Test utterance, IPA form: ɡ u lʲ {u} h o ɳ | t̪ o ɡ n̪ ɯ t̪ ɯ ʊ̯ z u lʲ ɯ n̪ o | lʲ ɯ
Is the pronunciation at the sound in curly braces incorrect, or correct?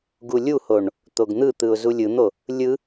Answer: correct